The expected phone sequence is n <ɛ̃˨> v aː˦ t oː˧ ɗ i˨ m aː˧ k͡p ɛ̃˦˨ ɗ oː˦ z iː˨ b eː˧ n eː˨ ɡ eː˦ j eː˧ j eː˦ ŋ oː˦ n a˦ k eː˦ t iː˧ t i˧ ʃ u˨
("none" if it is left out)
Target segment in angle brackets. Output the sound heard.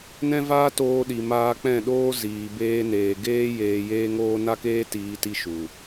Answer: ɛ̃˦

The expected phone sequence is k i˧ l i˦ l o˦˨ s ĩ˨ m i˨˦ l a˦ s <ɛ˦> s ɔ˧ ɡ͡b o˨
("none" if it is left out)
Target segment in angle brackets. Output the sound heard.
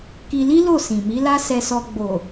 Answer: ɛ˧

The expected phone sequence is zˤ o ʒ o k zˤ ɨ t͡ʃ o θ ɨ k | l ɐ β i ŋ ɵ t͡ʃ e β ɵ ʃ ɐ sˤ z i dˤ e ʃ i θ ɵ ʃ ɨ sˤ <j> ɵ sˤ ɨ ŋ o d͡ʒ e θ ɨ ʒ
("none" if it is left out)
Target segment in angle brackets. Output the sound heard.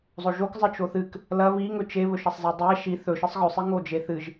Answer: ɣ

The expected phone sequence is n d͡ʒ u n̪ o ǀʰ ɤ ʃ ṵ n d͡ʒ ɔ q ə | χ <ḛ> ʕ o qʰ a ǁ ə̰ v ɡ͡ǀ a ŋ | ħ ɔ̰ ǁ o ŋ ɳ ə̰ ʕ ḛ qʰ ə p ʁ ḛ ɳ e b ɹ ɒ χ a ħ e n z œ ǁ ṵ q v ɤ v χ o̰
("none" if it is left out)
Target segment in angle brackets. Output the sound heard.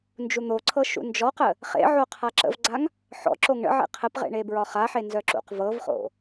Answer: ḛ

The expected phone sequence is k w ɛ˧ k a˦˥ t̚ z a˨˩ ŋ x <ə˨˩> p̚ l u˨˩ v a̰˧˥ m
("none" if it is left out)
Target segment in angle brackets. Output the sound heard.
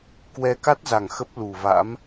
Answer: ə˦˥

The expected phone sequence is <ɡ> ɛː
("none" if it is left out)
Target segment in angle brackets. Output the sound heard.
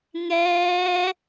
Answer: ŋ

